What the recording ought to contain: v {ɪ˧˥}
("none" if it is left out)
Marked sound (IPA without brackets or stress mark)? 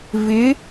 ɪ˧˥